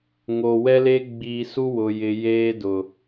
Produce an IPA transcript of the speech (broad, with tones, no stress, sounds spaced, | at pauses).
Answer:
ŋ oː˨ w ɛ˦ l e˦ ɡ͡b iː˨ s u˦ w ʊ˨ j ɪ˨ j eː˦ d ʊ˨